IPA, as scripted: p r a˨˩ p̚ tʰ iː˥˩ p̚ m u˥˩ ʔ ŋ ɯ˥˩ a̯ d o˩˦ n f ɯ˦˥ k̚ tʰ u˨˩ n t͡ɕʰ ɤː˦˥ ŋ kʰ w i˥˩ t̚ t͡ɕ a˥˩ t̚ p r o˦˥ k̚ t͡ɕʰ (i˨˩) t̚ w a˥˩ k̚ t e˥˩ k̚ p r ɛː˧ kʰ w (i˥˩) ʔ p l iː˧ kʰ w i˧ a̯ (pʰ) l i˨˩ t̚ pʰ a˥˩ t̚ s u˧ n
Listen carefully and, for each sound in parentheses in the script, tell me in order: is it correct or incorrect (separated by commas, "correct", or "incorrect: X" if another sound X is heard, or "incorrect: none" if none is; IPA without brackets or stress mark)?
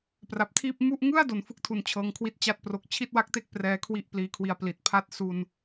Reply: incorrect: i˥˩, correct, incorrect: p